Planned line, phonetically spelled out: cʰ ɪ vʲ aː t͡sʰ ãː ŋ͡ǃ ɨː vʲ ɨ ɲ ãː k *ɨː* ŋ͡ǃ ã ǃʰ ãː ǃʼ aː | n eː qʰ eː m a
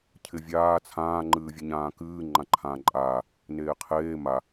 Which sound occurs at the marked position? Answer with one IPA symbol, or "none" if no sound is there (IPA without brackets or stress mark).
ɨː